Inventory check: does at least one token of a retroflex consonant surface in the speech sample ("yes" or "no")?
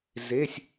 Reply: no